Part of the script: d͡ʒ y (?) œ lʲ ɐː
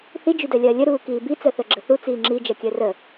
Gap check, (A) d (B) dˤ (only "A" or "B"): A